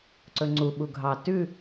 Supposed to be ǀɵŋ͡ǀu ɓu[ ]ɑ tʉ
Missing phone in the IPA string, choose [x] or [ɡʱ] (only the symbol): ɡʱ